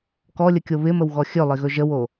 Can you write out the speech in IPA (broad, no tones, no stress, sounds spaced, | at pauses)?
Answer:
k ɔ lʲ ə kʲ o β ɪ m ə w ɣ ɔ xʲ ɵ lˠ ɪ ɣ ɵ ʒ ə w o